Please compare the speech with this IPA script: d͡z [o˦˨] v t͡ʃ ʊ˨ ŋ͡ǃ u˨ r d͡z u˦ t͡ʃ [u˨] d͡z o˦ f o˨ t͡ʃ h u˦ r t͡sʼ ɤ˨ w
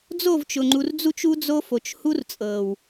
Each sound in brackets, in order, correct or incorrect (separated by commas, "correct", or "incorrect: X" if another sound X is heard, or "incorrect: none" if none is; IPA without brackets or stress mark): correct, incorrect: u˦